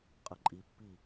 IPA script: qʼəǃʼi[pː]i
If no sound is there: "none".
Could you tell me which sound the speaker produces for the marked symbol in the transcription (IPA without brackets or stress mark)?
pː